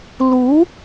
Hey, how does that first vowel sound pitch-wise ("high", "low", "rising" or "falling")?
rising